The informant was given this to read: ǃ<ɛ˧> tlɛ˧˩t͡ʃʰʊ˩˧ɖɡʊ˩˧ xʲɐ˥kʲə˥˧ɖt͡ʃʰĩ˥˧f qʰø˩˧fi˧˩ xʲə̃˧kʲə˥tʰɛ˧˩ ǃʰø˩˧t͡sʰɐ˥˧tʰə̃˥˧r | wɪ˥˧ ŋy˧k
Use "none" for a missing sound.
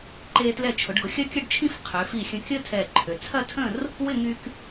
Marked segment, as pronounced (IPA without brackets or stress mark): e˧